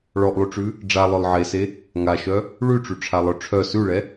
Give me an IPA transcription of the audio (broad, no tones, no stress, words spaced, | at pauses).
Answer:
ɭɔʔlˠyʈ͡ʂʉ | ɖ͡ʐalˠœlˠ ʕese | ŋaʃœ | ɭʉʈ͡ʂyʈ͡ʂʰalˠœ ʈ͡ʂʰœ sʉɭɛ